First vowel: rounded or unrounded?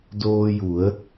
rounded